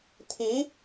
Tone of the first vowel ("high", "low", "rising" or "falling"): rising